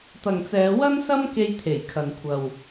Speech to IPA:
t̪ ɐ˨ ŋ t͡s ɛː˨˧ w ɐ˥ n s ɐ˥ m k e˧ j t̪ʰ e˨˩ j kʰ ɐ˨ n kʷʰ ɐ˨ w

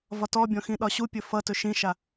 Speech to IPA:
v ɒ t ɔ bʲ ɔ̃ x ĩ ɗ ɒ ɕ u pʲ ɵ f ʌ t ɵ ʃ ĩ ʃ a

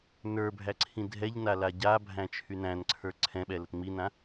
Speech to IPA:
n ə˞ bʱ æ ǀʰ ĩ dʱ ɛ ʎ n a l a ɟ a bʱ æ̃ t͡ʃʰ y n æ̃ n ǀʰ ə˞ ǀʰ ɛ̃ ɓ ɛ l ə t ŋ͡m i n ã

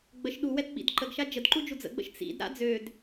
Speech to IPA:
ɡ͡b ə ʃ ɗ u w ɛ d ɓ ḭ d ǃ ə ɡ ʃ a d͡ʒ ə d ǃ u d͡ʒ u d͡z ə̰ ɡ͡b ə̰ ʃ t͡s ḭ d ɾ a̰ d͡z ø d

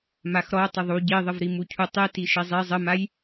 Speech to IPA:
m a x ɾ ɔ tˤ ə ðˤ u ɟ i ðˤ ə v ɾ i m u cʰ u tˤ i t i ʃ i zˤ i zˤ ə m a j

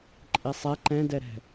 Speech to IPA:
ǃʼ i sˤ ɛ ǃ ɛ̃ d ɛ ɾ ɛ̤

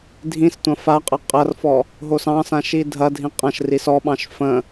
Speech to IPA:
dʱ ĩ s tʷ ɐ̃ f a qʼ ə qʼ ɐ r f ɔ | ɦ o s ɑ̃ s ã ʃ i dʱ ɐ dʱ ĩ qʼ ɐ̃ ʃ r i s ɔ ɓ ɑ̃ ʃ f ə̃

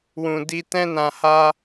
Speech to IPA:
w ũ˨ d i˧ t ɛ̃˧ n ã˨ h a˧

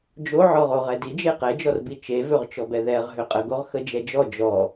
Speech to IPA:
d͡ʒ o ʕ ɔ ʁ o ʁ ɛ d i d͡ʒ e q ɛ d͡ʒ ɔ r b i t͡ʃ e v ø ʁ t͡ʃ ɔ b ɛ ð ɛ ʁ ɦ ø qʼ ə ɡ o ʁ x ə d͡ʒ ɛ d͡ʒ ɔ d͡ʒ ɔ

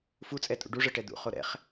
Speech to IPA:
f u t͡sʼ ɛ tʼ ṵ ɖ u ʐ ɤ ʈ ɛ d̪ ṵ χ o ɾ ɛ̰ χ

